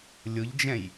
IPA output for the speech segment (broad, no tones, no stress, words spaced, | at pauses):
lʲʊʎd͡ʒɛ̃j